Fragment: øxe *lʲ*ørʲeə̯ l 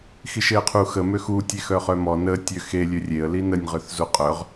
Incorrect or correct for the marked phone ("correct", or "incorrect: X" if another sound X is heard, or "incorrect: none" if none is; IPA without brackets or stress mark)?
correct